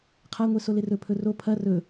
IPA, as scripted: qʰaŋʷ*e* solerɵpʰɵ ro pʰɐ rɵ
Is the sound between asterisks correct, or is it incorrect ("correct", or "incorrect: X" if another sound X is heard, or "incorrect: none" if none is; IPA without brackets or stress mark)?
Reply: correct